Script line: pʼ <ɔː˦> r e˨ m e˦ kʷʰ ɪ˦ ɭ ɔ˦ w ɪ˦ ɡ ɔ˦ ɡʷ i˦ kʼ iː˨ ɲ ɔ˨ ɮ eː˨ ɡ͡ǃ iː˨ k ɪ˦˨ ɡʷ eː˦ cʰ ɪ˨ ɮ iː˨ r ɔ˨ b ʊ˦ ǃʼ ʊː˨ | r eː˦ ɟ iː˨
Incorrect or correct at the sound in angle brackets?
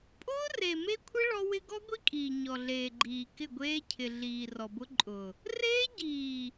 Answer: incorrect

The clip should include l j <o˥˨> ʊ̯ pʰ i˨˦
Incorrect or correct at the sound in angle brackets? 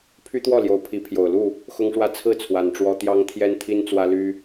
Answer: incorrect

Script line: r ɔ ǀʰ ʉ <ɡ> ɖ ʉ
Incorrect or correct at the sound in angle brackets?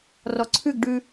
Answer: correct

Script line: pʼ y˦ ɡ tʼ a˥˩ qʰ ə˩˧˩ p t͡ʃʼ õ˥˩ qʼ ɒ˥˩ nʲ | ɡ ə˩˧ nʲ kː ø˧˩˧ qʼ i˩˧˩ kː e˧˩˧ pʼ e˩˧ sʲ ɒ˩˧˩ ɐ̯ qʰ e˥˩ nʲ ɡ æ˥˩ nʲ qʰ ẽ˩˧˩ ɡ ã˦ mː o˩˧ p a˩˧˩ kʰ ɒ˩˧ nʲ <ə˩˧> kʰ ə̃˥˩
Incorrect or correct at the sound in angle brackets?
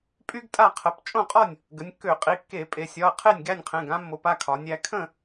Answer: incorrect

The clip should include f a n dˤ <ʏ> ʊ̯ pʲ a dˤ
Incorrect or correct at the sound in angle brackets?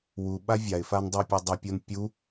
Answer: correct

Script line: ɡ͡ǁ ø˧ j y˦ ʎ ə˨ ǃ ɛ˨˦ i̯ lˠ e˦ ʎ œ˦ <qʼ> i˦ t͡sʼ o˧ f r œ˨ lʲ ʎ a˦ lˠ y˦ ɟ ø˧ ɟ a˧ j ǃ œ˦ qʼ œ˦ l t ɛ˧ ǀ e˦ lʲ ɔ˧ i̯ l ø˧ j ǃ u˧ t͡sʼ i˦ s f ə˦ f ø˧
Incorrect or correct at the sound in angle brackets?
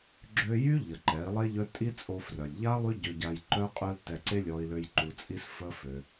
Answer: incorrect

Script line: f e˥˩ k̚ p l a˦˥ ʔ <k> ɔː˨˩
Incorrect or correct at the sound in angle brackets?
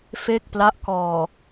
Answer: correct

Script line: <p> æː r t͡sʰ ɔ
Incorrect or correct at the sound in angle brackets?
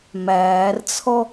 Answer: incorrect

